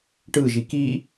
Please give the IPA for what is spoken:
ʈ ɯ ʒ i k i

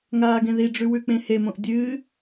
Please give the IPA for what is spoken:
ŋ aː ɡ ẽ ð i ɖ͡ʐ ʉ w ʉ k͡p ẽ h e m õ ʔ dʲ ɨ

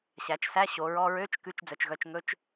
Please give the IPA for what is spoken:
ɕ æ˩˧ t͡ʃ s æ˧˥˧ ɕ o˩˧ ɹ ɔ˧˥˧ ɹ ø˧˥˧ t͡ʃ k ʉ˧˥˧ t͡ʃ d͡z œ˩˧ t͡ʃ ɣ œ˧˥˧ t͡ʃ ŋ ɵ˧˥˧ t͡ʃ

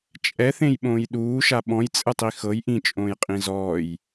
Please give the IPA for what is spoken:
t͡ʃʼ ɛ θ ẽ j ɓ õː j ɗ uː ʃ a ɓ ɔ̃ j t͡sʼ ɯ tˤ i x ɤ j ʔ ĩ t͡ʃʼ õː j qʼ ĩ z ɔː j

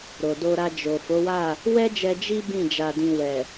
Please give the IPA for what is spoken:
ɾ o˨ d o˧ ɾ a˧ d͡ʒ o˨ f o˨˦ w a˦˨ | w ɛ˦ d͡ʒ ɛ˧ d͡ʒ i˦ b ĩ˦˨ d͡ʒ a˧ d ĩ˧ w ɛ˨

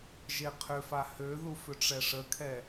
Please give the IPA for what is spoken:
ʒ e qʰ ʏ f a h ø ð u f ʏ ʈ͡ʂ ɛ ʂ ə kʰ ɛ

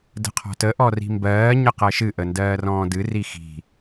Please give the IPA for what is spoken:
d ə̤ qʰ ɔ̤ t ə ʔ ɔ r i̤ m b ɜː ɲ ə q ɜ ʃ ɨ ʔ ə n d ɜː r ɔ̃ː d ɨ r i x i̤

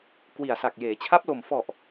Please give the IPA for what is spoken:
k w i˨˩ a̯ s a˨˩ k̚ j eː˩˦ t͡ɕʰ a˦˥ p̚ l o˨˩ m f ɔ˨˩ ʔ

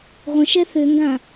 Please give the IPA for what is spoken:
ʁʷ ə̃ ʃ ɛ θ ø ŋ ɡ ã

